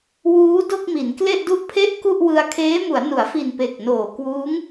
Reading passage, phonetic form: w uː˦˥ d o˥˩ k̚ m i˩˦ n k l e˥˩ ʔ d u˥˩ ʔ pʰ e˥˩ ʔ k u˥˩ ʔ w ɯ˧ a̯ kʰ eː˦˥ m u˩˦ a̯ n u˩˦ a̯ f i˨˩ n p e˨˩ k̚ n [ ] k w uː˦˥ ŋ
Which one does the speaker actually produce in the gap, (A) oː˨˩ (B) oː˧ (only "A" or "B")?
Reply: A